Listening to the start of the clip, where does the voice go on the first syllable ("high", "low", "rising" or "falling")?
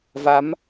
rising